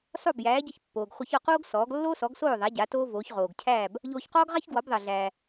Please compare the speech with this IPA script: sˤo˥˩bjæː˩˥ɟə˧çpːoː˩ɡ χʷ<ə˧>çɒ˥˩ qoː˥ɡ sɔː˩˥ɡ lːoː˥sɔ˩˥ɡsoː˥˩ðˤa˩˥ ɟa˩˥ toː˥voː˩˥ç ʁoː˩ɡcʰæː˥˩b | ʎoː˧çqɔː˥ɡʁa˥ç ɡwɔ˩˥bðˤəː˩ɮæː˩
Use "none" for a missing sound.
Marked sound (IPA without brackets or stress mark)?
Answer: ə˧